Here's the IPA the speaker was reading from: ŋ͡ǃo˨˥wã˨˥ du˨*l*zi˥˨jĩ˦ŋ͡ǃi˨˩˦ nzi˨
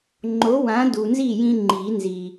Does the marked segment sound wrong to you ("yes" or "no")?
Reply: yes